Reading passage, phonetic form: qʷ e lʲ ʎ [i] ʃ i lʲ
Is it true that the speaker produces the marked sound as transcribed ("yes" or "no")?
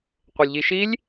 yes